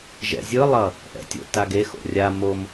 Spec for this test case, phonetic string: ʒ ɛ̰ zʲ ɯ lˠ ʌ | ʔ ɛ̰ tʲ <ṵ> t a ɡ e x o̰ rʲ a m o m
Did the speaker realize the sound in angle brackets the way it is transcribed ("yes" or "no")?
no